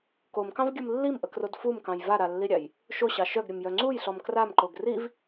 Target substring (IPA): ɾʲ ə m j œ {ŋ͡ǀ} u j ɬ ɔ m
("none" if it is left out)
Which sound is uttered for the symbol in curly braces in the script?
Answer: ŋ͡ǀ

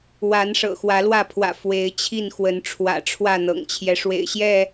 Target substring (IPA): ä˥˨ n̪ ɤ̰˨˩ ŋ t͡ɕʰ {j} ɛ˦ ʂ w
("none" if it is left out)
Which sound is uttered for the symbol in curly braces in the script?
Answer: j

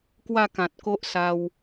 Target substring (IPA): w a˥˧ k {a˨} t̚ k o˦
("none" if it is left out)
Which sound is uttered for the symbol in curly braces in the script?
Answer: ã˨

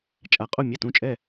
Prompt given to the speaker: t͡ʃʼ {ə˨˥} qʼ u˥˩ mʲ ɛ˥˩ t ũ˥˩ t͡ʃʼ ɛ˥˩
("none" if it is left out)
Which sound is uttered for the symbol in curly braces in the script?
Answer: a˨˥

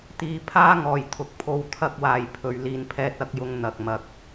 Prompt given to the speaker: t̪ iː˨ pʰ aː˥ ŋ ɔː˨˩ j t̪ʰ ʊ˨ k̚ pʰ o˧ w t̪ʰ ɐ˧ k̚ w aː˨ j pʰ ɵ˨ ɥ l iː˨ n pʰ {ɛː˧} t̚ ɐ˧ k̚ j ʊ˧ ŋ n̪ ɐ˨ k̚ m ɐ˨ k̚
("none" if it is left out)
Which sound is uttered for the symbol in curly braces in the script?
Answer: ɛː˧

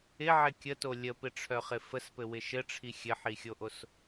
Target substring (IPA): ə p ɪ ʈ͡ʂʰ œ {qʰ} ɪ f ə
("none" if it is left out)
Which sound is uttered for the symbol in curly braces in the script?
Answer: χ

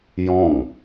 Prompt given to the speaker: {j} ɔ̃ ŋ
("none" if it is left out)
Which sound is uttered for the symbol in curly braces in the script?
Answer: j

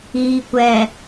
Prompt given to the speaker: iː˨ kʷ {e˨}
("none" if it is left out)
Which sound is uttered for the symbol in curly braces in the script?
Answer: ɛ˨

